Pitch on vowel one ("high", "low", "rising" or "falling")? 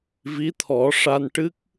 rising